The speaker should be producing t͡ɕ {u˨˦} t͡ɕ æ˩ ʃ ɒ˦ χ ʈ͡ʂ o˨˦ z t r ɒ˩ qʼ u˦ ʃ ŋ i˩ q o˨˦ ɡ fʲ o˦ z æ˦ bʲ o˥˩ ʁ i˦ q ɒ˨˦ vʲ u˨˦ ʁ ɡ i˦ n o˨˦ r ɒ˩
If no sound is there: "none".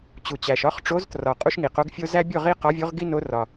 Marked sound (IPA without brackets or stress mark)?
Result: u˩